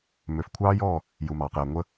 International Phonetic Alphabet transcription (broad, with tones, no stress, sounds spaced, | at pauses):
m ø˨ f kʷʰ ɑː˦ j ɔː˦˨ | j u˨ m ɑː˨ q j ɛ˨ ŋʷ ə˦